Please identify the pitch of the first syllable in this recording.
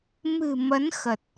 low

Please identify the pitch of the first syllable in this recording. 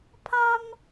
high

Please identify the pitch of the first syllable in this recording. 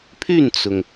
falling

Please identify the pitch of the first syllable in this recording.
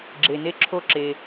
low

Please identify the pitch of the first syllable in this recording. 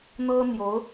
high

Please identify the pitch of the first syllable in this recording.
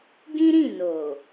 high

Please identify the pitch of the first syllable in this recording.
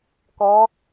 rising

